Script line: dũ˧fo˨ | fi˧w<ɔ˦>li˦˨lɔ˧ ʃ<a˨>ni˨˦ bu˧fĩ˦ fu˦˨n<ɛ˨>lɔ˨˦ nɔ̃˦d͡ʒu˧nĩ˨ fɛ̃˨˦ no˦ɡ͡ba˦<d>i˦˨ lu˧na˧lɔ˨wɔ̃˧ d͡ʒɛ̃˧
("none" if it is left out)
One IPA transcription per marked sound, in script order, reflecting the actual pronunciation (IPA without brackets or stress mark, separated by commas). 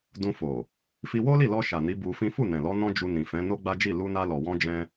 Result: o˦, a˨, ɛ̃˨, d͡ʒ